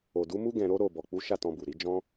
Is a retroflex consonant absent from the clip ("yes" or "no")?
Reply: yes